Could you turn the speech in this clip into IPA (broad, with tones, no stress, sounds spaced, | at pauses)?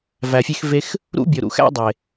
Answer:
v æ˨ fʲ e˦ x v e˦ x | ɾ ṵ˦ bʲ o˨ ɾ ṵ˨˦ x æ̰˦ dˤ e˨